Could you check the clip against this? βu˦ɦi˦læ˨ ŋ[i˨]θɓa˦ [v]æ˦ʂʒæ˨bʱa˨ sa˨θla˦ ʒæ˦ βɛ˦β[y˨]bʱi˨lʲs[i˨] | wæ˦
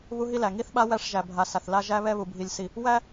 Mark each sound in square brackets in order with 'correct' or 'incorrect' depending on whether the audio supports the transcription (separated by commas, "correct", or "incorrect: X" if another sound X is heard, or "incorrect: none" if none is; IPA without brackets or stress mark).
incorrect: i˦, incorrect: w, incorrect: u˨, correct